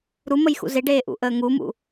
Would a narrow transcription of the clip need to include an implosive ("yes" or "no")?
no